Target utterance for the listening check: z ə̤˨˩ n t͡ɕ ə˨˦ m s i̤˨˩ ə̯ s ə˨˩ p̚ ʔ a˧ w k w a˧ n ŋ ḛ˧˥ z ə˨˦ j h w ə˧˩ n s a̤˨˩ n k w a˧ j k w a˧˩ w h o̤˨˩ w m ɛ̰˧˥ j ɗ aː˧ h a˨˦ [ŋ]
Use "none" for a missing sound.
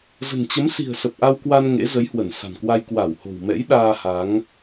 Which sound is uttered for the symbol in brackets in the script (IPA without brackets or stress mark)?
ŋ